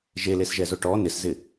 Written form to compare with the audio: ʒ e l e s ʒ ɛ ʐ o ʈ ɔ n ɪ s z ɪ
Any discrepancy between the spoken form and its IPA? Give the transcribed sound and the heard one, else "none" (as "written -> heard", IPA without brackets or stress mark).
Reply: ʐ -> z